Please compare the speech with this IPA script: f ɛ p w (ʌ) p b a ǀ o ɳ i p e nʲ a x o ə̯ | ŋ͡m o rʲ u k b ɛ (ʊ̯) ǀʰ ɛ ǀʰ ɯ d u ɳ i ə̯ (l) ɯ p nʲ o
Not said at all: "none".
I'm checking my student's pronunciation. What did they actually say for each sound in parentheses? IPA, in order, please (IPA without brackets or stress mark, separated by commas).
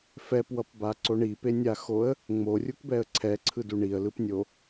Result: ʌ, ə̯, l